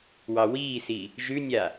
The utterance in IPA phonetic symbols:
w ɑ w iː s i | ʒ ʉ nʲ a

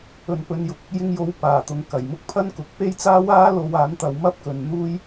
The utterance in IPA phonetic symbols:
ɵ˨ n p ɵ˨˧ n j ʊ˨ k̚ | j ɪ˧ ŋ j o˨˧ w p aː˨˩ t̪ ʊ˨ ŋ k ɐ˨˩ j m ʊ˥ k̚ pʰ ɐ˥ n k ʊ˨˥ k̚ p e˥ j t͡s aː˥ w aː˥ l o˧ w aː˨˥ n t̪ ɐ˨˧ w m ɐ˥ p̚ k ɵ˨˧ n n̪ uː˧ j

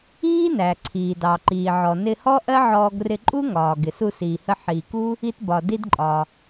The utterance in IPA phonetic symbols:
iː˥ n æ˩ ǀʰ iː˩ d ɑ˩ ǃ iː˩ ʕ ɔ˩ n ɪ˧ h ɔ˥ ʔ ɜ˥ ʕ ɔː˧ ɡ r ɪ˧ ǃʼ u˥ ŋ ɒː˩ ɡ ɪ˩ s u˧ s iː˩ h ə˧ ħ iː˩ k u˥ | i˧ t b ɒ˩ d i˥ d ǃʼ ɒ˩

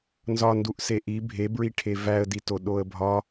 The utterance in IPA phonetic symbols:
n z ɒ n d u ʔ s e ʔ i bʱ e b ɹ i ʈʰ e v æ ə̯ d i t o ɗ o ə̯ bʱ ɒ

